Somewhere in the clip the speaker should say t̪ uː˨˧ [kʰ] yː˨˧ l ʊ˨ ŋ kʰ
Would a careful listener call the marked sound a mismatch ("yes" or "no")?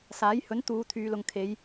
yes